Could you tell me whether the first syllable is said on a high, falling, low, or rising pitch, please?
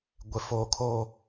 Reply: low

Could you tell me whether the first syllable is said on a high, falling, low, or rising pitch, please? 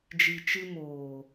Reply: low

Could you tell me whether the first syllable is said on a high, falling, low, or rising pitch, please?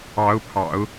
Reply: rising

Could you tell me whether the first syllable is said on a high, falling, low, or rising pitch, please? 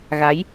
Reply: rising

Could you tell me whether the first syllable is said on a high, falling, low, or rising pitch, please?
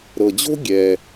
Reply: low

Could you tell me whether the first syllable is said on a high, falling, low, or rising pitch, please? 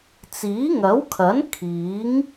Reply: rising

